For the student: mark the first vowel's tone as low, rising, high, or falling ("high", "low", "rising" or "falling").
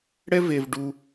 high